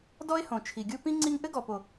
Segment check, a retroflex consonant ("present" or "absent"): absent